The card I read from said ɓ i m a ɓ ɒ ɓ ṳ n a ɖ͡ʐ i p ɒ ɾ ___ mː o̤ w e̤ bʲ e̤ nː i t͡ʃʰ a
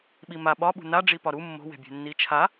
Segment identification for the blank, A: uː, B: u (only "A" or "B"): B